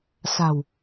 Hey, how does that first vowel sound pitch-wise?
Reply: low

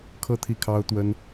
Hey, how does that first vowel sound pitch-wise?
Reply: falling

